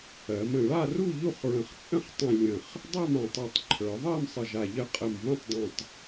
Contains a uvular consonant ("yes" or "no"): yes